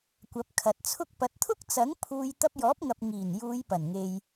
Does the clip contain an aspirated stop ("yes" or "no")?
yes